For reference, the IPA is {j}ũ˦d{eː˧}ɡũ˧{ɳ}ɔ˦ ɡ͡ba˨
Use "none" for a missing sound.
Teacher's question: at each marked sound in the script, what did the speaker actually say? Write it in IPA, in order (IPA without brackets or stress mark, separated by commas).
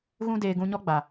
ɣ, eː˧, ɲ